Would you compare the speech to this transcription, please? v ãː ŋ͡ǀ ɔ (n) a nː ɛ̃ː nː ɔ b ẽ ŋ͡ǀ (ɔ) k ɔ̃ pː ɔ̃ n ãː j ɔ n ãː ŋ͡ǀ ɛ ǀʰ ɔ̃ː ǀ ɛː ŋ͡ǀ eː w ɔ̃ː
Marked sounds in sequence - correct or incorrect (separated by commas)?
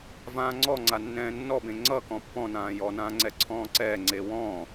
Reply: incorrect, incorrect